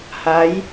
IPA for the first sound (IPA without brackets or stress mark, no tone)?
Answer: h